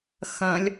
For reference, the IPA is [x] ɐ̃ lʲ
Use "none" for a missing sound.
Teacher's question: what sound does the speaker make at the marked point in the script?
x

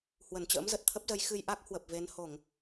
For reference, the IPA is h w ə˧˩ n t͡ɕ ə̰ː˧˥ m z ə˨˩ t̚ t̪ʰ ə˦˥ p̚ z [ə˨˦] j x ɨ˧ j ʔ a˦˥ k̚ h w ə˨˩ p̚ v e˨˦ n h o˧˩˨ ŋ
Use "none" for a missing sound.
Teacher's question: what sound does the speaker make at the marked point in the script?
ə˨˦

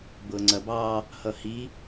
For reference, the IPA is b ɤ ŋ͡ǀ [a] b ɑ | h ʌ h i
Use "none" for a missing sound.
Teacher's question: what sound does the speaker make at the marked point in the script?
ɐ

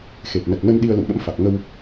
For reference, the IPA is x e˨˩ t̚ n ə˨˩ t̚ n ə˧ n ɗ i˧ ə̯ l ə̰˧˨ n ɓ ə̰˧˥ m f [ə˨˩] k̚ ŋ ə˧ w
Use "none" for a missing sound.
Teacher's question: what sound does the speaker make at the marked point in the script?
a˨˩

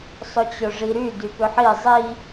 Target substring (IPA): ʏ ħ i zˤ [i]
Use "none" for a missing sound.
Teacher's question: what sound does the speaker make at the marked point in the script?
i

